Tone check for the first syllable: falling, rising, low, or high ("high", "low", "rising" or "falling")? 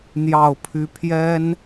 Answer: falling